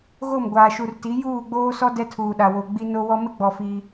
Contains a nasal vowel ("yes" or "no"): no